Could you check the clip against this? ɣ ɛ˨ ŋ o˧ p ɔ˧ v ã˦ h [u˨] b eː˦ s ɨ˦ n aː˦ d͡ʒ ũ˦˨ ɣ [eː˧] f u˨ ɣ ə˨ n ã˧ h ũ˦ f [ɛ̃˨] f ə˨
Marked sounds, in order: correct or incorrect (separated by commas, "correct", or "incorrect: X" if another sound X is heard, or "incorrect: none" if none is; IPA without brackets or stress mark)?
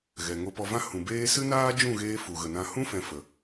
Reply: incorrect: ũ˨, incorrect: eː˦, correct